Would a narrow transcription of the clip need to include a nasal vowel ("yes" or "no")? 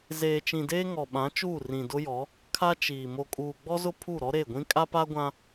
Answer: yes